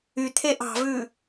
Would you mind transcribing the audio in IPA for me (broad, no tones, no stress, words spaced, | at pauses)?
yt̪ʰe ʔɑ̤vʉ